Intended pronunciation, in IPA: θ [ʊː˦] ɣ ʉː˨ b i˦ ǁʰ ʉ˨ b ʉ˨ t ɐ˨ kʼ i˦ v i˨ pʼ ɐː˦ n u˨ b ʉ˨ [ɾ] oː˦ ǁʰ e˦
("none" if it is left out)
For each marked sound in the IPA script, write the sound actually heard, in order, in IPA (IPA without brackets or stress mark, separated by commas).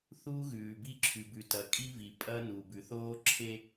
uː˦, θ